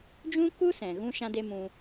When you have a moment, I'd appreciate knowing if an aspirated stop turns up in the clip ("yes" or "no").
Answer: no